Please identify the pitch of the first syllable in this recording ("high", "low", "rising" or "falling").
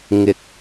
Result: low